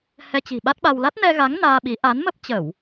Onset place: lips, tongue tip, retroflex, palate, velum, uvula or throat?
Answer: throat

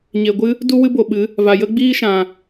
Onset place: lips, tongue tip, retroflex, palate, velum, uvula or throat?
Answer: palate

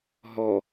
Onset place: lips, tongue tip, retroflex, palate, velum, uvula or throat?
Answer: throat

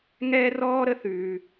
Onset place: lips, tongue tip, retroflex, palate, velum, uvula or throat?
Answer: velum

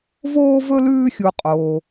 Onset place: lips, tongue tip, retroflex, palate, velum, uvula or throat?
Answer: lips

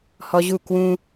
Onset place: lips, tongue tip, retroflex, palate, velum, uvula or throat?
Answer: throat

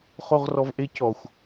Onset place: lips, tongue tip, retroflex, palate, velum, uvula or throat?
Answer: uvula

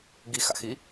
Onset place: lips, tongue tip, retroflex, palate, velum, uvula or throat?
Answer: velum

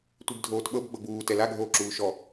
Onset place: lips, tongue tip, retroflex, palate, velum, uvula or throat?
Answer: tongue tip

